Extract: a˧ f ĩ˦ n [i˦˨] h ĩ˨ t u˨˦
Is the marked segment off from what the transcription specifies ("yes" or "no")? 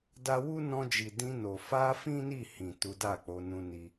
no